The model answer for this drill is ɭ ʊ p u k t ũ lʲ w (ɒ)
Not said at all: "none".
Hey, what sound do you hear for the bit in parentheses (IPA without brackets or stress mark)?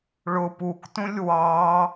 ɑ